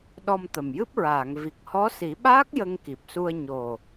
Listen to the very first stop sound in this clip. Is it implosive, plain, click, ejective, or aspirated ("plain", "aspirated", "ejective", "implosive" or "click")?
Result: implosive